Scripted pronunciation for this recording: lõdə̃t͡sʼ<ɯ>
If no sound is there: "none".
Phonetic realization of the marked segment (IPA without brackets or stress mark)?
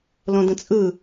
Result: ɯ